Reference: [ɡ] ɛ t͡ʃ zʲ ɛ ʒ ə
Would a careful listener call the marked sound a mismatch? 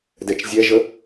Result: yes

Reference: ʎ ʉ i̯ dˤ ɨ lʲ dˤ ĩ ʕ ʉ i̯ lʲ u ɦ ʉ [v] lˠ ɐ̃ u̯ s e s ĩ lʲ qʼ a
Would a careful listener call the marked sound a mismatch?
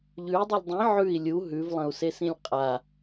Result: no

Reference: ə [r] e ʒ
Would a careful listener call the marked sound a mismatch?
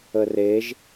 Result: no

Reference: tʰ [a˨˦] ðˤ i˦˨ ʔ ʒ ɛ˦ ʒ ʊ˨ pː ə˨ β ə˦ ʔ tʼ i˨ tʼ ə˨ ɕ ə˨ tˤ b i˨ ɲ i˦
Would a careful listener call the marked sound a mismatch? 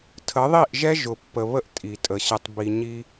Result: yes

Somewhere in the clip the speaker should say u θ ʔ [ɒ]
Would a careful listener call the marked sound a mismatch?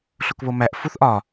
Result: no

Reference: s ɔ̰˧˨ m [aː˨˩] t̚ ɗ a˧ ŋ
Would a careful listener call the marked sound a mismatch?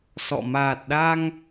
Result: no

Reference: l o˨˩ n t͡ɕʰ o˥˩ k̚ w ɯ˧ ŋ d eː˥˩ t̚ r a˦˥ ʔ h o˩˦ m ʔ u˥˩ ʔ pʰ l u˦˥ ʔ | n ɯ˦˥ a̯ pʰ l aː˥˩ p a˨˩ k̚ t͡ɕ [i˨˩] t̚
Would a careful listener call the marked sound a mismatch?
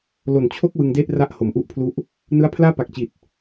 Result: no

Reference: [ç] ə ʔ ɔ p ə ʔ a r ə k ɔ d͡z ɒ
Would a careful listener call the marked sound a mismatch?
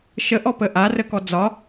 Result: yes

